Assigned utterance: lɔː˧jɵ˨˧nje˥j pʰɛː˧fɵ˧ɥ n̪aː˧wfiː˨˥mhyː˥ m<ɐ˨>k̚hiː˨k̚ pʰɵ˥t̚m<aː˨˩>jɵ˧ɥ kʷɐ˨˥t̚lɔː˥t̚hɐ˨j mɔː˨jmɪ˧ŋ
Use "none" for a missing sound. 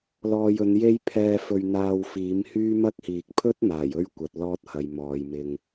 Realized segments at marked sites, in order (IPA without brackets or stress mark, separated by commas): ɐ˥, aː˨˩